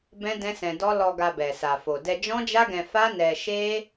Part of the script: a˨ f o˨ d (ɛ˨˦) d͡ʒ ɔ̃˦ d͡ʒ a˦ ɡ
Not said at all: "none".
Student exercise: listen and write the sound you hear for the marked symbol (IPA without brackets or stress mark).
ɛ˧